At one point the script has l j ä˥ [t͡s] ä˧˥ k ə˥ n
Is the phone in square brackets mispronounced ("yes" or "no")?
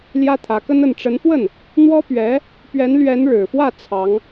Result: yes